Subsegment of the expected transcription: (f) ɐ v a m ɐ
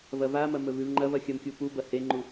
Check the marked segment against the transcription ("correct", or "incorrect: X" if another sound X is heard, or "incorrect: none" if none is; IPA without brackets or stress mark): incorrect: v